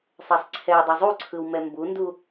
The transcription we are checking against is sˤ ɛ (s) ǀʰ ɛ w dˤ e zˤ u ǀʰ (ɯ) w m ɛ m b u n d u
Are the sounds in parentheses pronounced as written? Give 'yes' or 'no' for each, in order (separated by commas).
no, yes